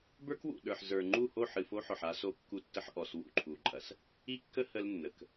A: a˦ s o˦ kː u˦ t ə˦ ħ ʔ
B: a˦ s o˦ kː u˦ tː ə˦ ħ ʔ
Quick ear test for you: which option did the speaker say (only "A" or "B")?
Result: B